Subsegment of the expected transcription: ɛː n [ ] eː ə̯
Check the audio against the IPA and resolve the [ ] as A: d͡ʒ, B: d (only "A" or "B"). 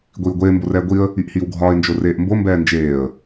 A